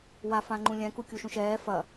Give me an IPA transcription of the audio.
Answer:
w a f ã ŋ͡ǃ ũ lʲ ɛ̃ k u kʲ u ʃ ũ ʃ ɛː f ɐ

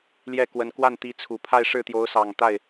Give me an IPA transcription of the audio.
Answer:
l j ɛ˥˩ k w ə˧˥ n k w a˥˩ n t̪ i˧˥ t͡sʰ u˨˩ pʰ a˥˧ ɪ̯ ʂ ɻ̩˥˩ t̪ j o˧˥ ʊ̯ s ɑ˨˩ ŋ t̪ a˥˩ ɪ̯

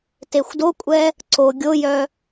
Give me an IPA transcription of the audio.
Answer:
t e xʷ d o kʷʼ ɛ | ǀ o ɡʲ o j œ

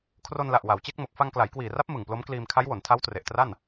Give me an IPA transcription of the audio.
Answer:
kʰ r o˧ n l a˨˩ ʔ w a˩˦ w t͡ɕ e˦˥ k̚ m o˨˩ k̚ f a˧ ŋ k l a˩˦ j k w iː˨˩ r a˦˥ p̚ m ɯ˨˩ ŋ p l o˦˥ m k l iː˧ m kʰ a˦˥ j w o˩˦ n tʰ a˦˥ w t r e˨˩ ʔ t r a˥˩ n

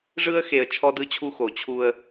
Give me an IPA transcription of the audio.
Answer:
ʐ ɯ˦ ə̯ x e˨ ə̯ t͡ʃʰ ɔ˦ d ɯ˦ t͡ɕʰ u˦ x o˨ t͡ɕʰ u˦ ə̯

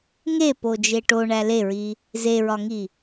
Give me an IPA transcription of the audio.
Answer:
ŋ e p o d͡ʒ e ʈ o ɳ æ l e ɹ i | z e ɹ ɒ ŋ i

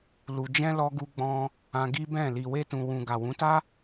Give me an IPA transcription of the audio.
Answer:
l u˨ d͡ʒ ɛ̃˧ l ɔ˧ ɡ u˧ ɡ͡b ɔ̃˧ | ã˧ ɡ i˦ b ɛ̃˦˨ l i˨ w e˧ t ũ˨ w ũ˨ ɡ a˨ w ũ˨˦ t a˦

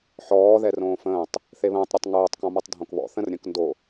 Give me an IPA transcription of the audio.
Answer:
ħ ɔː ð ɛ r õː f ə̃ː tˤ | θ e β ə̃ː tˤ ɾʲ ɔ tˤ ŋ oː tˤ k ɔ̃ m ʌ tˤ dʱ õ k β ɔ̰ θ ə̃ r ɾʲ ə̃ː k n d o

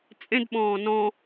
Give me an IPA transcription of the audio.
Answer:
t͡sʼ ẽ d ɓ ɔ̃ː n ɔ̃

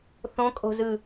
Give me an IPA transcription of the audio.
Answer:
θ õ kʼ o̤ z ɯ

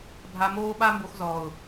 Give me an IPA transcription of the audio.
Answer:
bʱ a˧ m oː˦ ɓ a˦ m b o˧ x z ɔː˨ ʊ̯

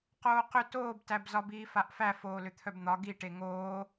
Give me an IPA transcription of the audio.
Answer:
q oː q ʏ t oː b t æ b z ɒ b iː f a ʔ f æ f oː l ʏ t̪ʰ œ b n̪ ɒ ɡ i ʈ e ŋ oː

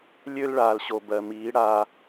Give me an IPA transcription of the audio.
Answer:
lʲ ø˦ l ɭ aː˨ l ɕ o˨ b ɜ˨ m iː˨˦ ɽ a˦

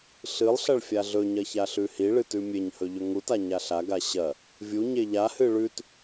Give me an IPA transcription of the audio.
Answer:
ɬ ɨ lˠ ɬ ɐ ɭ fʲ a ɮ ɵ ɲ ɐ ç a ɬ ʉ h i ɭ ɨ t ʉ mʲ e ɲ h ɵ ʎ ɵ ŋ u t a ɲ a ɬ a ɡ a ɕ ɐ | vʲ u ɲ e ʎ a h ɨ ɭ ʉ t

